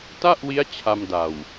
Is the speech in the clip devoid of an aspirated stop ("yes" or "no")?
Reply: no